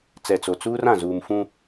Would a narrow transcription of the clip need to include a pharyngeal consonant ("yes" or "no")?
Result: no